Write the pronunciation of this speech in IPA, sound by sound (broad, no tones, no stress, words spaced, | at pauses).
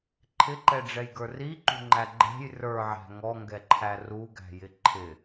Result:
ǃʰɪǃɛɖ͡ʐɛjɡə˞ riǃṳŋ͡ǃæ ɡ͡ǃɛ̤j rə˞ʕæ̤ ŋɔŋɡɛǃʰæ ruɡæ̤jɪ ǃʰɪ